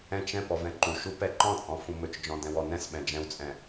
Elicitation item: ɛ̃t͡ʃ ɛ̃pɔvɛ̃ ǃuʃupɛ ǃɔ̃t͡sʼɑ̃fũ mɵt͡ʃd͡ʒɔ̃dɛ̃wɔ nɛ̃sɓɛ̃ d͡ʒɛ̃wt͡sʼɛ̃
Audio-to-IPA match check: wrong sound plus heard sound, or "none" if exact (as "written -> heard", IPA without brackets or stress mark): ɑ̃ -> ɔ̃